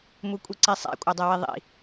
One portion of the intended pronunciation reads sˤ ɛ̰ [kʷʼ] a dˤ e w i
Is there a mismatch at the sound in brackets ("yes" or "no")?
no